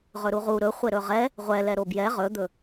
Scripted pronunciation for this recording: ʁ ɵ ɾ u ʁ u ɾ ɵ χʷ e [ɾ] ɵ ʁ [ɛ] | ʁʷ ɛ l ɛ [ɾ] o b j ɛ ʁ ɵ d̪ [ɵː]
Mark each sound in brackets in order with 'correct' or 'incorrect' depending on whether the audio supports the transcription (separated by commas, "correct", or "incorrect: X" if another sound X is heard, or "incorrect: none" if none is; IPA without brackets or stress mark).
correct, correct, correct, incorrect: ɵ